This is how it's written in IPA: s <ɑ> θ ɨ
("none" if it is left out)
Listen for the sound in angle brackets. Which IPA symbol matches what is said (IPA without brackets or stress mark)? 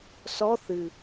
ɔ